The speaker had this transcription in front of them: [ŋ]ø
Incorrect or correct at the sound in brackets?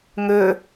correct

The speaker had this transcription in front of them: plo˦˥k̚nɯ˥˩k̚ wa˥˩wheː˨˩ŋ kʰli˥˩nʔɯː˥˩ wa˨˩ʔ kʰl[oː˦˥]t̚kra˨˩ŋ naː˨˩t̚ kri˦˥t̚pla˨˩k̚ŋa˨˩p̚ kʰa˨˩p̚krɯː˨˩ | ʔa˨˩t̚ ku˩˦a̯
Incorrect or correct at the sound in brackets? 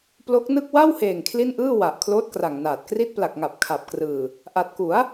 correct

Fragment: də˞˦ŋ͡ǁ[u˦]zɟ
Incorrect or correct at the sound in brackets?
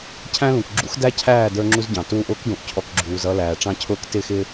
correct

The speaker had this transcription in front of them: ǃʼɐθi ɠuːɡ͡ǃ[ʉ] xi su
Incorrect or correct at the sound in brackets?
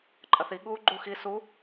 incorrect: u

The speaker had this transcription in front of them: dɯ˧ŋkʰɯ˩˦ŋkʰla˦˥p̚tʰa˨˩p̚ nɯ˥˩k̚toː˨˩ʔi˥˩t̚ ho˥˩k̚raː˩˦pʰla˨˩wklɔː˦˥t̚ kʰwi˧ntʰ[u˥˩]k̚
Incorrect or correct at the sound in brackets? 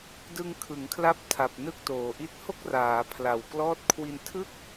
incorrect: ɯ˥˩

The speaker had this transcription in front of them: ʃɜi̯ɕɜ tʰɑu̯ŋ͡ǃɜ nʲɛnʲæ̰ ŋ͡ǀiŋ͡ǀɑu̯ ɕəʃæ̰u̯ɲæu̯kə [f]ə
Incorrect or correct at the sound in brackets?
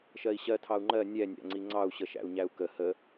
incorrect: h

